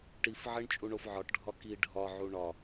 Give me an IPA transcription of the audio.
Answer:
ʈ i f ʕ e ɳ t͡ʃʼ u ɳ o f ʕ ɒ ʈ ɖʱ ɒ k i ɖʱ ɒ ʕ u ɳ ɒ

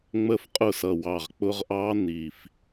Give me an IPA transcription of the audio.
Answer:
ŋ͡m ə˥˩ f qʼ ʊ˥˩ s ʌ˧˩ w ɑ˧˩ ʁ k͡p ʊ˦˥ ʁ ʔ ɑ˦˥ n i˧˩ f

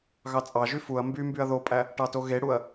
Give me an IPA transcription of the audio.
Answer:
ɣ ɑ t͡sʼ ɑ ʒ y f u ɐ̯ m b y m b y ɐ̯ ð o pʼ æ | ʈ ɑ t o ɣ e ɽ u ɐ̯

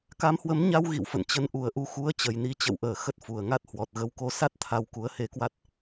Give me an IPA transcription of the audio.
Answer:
k a˨˦ m h w ə˨˦ m ɲ a˧ w ɣ ḭ˧˨ w f ə̰˧˨ n t͡ɕ ə˨˦ n ʔ u˨˩ ə̯ ʔ u˧ x u˨˦ ə̯ t͡ɕ ə˨˩ j n i˨˦ t͡ɕ ə̰˧˨ w ʔ əː˧˩ x ə˦˥ t̚ f u˨˩ ə̯ ŋ a˦˥ t̚ h w ɔ˨˩ t̚ ɣ ə˨˦ w k o˨˦ s a˦˥ t̚ t̪ʰ a˧ w k u˨˦ ə̯ h e˨˦ k w a˦˥ t̚

